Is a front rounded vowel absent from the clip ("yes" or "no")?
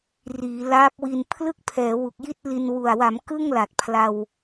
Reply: yes